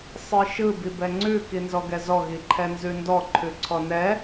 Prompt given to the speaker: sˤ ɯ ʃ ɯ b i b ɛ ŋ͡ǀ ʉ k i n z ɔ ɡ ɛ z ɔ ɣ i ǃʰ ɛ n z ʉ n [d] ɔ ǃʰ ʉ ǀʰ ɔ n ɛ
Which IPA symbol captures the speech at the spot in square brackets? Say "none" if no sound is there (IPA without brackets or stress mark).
d